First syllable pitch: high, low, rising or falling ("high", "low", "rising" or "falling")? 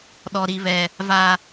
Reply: high